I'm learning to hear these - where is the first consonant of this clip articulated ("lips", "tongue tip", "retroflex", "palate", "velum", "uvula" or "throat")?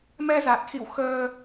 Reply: lips